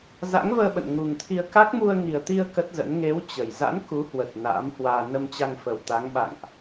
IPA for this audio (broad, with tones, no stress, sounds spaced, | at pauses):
z a̰˧˥ ŋ v əː˧ ɓ ə̰˧˨ n ŋ u˨˩ ŋ t̪ʰ i˧ ə̯ k a˦˥ k̚ m u˧ ə̯ ŋ i˨˩ ə̯ t̪ i˧ ə̯ k ə˦˥ t̚ z ə̰˧˥ n ŋ e˨˦ w t͡ɕ ə˨˩ j z a̰˧˥ n k u˨˦ h w ə˨˩ t̚ n a̰ː˧˥ m h w aː˧ n ə˧ m t͡ɕ a˧ ŋ f ə˨˩ w t̪ a˨˦ ŋ ɓ a̰˧˨ ŋ ʔ